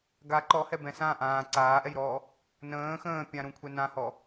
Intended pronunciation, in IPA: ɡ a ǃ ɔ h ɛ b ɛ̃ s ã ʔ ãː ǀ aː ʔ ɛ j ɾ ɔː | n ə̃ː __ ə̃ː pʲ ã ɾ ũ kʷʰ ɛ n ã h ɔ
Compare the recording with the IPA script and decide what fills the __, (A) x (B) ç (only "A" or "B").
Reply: A